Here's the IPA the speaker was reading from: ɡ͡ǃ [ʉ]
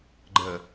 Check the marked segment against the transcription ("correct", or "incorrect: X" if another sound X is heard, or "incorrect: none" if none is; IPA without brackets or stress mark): incorrect: ə